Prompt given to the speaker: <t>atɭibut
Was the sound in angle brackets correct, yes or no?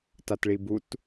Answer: yes